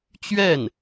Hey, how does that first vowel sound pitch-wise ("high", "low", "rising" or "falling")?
falling